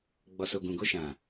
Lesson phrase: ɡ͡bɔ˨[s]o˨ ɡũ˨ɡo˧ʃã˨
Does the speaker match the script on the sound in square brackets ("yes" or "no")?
yes